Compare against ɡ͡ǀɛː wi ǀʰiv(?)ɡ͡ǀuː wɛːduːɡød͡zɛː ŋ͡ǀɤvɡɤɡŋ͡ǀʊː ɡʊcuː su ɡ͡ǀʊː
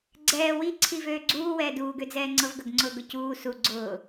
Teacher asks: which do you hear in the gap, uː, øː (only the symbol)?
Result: øː